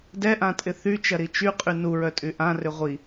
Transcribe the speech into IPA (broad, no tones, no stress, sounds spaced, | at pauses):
d ɛ ʔ ã tʼ ɪ θ y t͡ʃ ɐ ɾ i t͡ʃ y qʼ y n u ɹ œ tʼ y ʔ ã r ʏ ʁʷ i